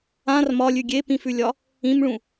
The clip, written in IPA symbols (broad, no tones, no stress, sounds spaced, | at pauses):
ã r m ɒ lʲ ʉ ɡʲ e p ĩ f ʉ lʲ ɒ | ĩ m ɭ ũ